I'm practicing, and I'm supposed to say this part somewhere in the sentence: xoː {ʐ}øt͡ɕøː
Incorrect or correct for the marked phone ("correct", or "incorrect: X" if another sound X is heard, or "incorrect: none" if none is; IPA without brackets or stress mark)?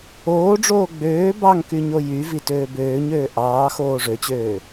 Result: correct